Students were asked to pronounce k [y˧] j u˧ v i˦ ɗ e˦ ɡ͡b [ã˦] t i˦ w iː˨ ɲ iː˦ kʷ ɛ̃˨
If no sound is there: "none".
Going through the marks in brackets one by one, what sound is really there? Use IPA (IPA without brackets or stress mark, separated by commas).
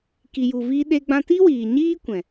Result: i˧, ã˦